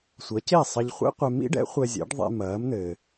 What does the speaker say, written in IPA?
sʷɐ˩˥ce˥˩sˤɐ˧ʎ χʷḛ˥qʷɛ˧ mḭ˥ɖɛ̰˩˥ χʷɛ˧zʲɛ̰˩˥ɖ ðˤḛ˧mɐː˩˥mn̪ɘː˩

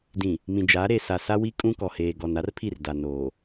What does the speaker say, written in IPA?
dĩ˨ | mĩ˨d͡ʒa˨˦ ɾe˨sa˨ sa˦wi˦ kʼũ˦kɔ˨ heː˨ɡɔ˨n a˦rpʰi˦˨r da˨noː˨

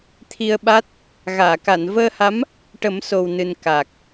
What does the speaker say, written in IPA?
t̪ʰi˧ə̯ɓa˦˥t̚ | ɣaː˨˩˨ka˨˩˨nvəː˧ha˧˥m | ʈə˨˩˦mso˨˩wnɨ˨˩n ka˨˩k̚

